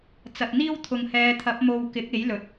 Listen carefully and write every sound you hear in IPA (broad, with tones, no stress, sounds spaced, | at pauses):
t͡s ɐ˨ t̚ n̪ iː˥ w t̪ʰ ʊ˨ ŋ h ɛː˨˧ t̪ʰ ɐ˨˥ p̚ m o˧ w k ɪ˨˥ k̚ e˨˥ j l ɵ˨˥ t̚